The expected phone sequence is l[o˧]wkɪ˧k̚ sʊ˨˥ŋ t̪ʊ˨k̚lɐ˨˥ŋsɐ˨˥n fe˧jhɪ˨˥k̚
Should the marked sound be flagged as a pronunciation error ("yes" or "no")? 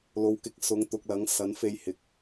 yes